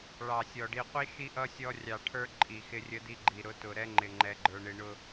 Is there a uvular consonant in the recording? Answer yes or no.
yes